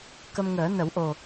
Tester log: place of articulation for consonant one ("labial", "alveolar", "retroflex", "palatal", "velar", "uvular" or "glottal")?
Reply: velar